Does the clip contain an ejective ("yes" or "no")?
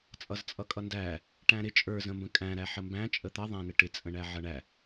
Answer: yes